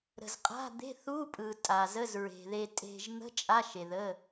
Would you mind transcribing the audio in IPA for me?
ɾə̤˨zqʼa̤˧˥˧d̪e̤˧˥˧θ u˧˥˧pʼɯ˨ tʼa˨zə˧˥˧zɹe̤˨ ðe˨tʼe̤˨ʒ n̪ə̤˧˥˧ t͡ʃʼa˧˥˧ʃe˨ðə˧˥˧

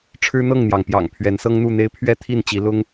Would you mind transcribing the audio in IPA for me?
ʈ͡ʂʰɻ̩˦n̪ɤ˥˨ŋn̪jɑ˩ŋ pjɑ̰˨˩ŋpʰɥɛ˨˦n sɤ˦ŋn̪u˥˨n̪e˦ɪ̯ pʰɥɛ˥˨t̪ʰi˥˨nt͡ɕi˨˦lʊ˦ŋ

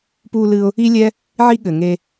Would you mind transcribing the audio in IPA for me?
pu˧lɨ˧ʊ̯ | i˥lʲɛ˥ | ʕi˥ɠɘ˩ ŋe˧

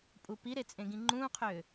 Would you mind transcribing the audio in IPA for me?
pʼupiɾe t͡sʼẽɡĩŋ͡ǃũːqʰʏː

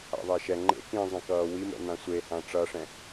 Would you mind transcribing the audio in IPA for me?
a̰ðˤɛʃɛ ŋ͡ǃḛ kĩzˤɛ̃kʌː wimɛ̰n̪ã sʷehã ʈ͡ʂʌʂɛ̃

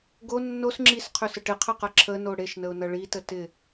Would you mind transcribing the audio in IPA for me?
ɡo nːos ŋ͡ǁisqʰøsə ʈɪqʰəqɐ ǁʰəno ɽeʃnəʊ̯nɐ ɭitə tɪ

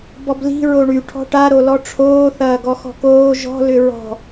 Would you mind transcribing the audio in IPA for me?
bɔbli̤ ɹoɳy ʈʰɔ̤ʈaɾolɔ ʈ͡ʂʰoːθɐː ɡɔxɔ̤koː ʒɔ̤lʏ ɹɔ̤

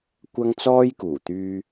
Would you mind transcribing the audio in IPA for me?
kʷɐ˥ŋt͡sɔː˥jkuː˨˩t̪yː˧

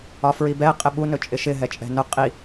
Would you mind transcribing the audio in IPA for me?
ɒfɹibɛ qʼɪɓu nɵt͡ʃʼɪʃɪ ɦɛt͡ʃʼɛ̤nʊ qʼi

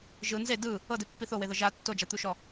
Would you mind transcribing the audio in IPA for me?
ʒɯ nze dɯ | ɤdepːi θoweðɤ ʒa tːod͡ʒat̪uʃɔ

